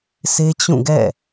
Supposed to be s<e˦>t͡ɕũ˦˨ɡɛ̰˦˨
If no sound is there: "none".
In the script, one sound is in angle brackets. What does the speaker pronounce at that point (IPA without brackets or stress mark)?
e˦